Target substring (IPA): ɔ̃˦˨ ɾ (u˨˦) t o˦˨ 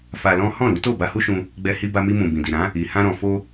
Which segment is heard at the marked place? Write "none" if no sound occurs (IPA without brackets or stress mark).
u˨˦